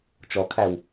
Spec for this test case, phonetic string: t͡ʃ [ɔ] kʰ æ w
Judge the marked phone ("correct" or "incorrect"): correct